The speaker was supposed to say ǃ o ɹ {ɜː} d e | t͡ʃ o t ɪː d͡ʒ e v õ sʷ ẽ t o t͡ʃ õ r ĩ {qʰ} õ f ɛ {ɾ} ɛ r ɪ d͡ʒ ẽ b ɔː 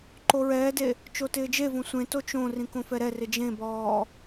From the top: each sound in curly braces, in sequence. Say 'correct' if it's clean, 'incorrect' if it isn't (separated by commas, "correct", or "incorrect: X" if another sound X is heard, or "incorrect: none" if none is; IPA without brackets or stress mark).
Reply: incorrect: ɛː, incorrect: k, correct